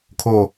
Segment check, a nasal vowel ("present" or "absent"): absent